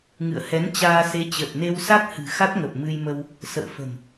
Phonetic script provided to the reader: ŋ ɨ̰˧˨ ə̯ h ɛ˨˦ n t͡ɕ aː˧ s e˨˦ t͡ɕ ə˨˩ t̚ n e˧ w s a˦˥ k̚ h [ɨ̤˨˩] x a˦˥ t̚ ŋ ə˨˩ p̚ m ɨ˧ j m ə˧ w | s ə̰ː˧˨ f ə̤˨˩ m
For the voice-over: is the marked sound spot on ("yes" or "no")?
yes